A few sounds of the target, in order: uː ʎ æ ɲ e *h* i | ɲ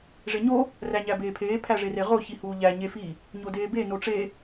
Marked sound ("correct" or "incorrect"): incorrect